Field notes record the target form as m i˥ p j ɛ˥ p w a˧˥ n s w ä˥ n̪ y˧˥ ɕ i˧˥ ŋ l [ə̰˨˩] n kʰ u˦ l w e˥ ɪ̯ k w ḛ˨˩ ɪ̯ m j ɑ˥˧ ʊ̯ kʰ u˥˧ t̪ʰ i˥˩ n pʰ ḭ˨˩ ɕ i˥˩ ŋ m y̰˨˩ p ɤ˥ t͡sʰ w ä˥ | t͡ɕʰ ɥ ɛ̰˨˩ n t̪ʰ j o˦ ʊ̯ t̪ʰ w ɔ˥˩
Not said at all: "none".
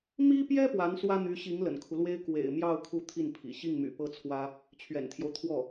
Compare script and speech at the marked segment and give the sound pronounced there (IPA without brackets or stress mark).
ə̰˨˩